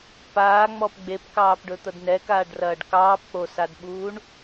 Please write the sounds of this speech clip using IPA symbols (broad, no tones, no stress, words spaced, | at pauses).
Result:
paːŋ͡mɔp ɡ͡bepkɑːpɖɵt̪ɐd nɛkaːɖrɐːɖ kɑːpk͡posadɓuːɳ